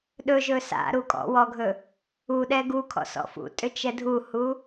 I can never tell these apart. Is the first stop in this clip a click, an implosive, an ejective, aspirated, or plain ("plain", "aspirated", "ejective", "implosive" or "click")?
implosive